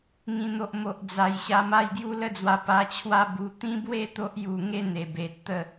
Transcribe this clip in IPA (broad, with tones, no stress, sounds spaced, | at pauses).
ŋ ĩ˨˩ n̪ o˨ ʔ m o˨ ʔ d͡z a˨˩ j ɕ a˧ m a˥˧ j ɡ j u˦ l ə˦ d͡z w a˧ p a˧ t͡ɕʰ w a˦ b u˧ t̪ ĩ˦ b w e˥˧ t̪ o˦ ʔ j u˧ ŋ e˦ n̪ e˨˩ b e˨ t̚ t̪ ə˥˧